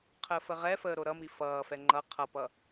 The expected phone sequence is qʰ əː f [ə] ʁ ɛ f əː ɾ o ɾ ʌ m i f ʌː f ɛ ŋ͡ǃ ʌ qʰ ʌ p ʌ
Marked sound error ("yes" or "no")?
no